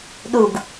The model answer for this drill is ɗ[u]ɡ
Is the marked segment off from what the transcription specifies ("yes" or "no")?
no